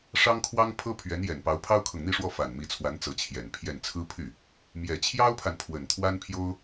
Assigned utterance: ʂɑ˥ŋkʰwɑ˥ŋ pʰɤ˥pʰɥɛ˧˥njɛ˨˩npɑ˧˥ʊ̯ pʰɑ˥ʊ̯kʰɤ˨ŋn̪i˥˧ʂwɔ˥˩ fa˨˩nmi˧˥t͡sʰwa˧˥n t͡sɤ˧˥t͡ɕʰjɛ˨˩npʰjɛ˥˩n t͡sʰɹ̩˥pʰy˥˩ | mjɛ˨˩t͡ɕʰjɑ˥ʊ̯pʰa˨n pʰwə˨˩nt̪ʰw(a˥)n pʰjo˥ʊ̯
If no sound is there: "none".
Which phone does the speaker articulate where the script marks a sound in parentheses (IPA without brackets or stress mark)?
a˥